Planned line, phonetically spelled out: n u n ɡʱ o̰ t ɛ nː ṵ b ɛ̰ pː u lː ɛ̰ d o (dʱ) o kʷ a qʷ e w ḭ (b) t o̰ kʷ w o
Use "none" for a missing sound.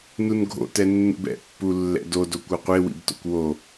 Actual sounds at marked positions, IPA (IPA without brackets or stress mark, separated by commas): d, b